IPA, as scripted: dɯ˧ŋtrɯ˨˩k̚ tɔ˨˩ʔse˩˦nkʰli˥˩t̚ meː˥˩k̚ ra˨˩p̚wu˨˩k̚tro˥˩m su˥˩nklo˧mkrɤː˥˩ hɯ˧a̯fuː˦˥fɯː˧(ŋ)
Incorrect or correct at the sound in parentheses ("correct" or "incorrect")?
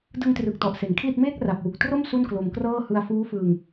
correct